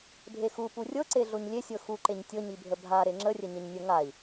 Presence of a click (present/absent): present